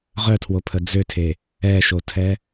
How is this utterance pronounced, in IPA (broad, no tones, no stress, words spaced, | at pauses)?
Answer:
ʁœtʰwopʰə d͡zøtʰe | ɛʃotʰɛ